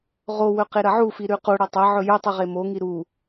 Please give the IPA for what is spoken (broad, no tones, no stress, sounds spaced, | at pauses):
ʁ o w ɵ q e ɾ ɐ ʕ u f i ɾ ʉ q u ɽ ɐ tˤ ɐ ʕ ɵ j ɵ tˤ ɨ ʁ e m o ŋ i ɾ u